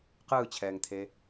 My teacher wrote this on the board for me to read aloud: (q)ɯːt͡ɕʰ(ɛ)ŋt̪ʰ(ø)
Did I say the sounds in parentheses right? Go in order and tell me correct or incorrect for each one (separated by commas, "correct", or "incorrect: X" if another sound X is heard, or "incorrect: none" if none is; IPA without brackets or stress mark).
correct, incorrect: ɛː, incorrect: e